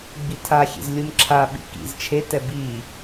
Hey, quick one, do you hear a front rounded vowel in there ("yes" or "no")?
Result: no